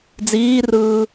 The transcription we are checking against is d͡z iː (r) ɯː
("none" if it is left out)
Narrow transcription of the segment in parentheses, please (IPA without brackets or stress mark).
r